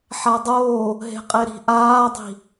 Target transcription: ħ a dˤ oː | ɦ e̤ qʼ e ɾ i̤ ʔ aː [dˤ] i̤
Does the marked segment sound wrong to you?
no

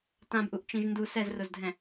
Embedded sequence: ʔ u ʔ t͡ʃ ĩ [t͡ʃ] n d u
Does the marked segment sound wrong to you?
yes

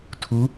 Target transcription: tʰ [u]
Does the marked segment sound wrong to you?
no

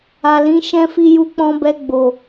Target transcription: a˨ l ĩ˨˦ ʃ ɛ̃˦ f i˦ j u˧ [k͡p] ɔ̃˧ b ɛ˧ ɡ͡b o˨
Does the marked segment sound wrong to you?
no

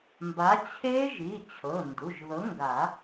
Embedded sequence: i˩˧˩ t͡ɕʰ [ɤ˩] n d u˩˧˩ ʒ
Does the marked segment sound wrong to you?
yes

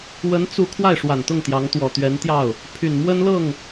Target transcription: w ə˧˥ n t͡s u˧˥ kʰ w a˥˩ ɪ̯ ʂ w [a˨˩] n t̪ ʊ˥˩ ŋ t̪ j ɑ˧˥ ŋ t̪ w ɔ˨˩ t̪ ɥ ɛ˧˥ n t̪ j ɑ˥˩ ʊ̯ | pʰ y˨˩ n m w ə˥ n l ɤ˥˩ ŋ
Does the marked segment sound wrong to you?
no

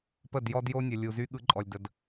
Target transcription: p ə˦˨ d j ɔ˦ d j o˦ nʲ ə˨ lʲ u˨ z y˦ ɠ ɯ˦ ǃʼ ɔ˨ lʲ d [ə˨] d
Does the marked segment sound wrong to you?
no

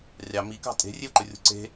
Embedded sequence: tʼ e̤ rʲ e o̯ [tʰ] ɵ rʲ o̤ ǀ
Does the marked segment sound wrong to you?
yes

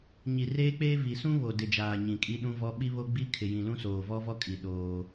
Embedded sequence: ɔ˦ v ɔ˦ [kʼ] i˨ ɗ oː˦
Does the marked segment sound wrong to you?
no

